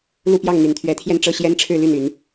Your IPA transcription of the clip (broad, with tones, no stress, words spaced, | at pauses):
lu˥˧pjɑ˥˩ŋ n̪y˨˩nt̪ʰɥɛ˧˥t̪ʰjɛ˥˧n ʈ͡ʂɤ˥˩ɕjɛ˥nʈ͡ʂʰɻ̩˥˧ly˥˩n y˧˥n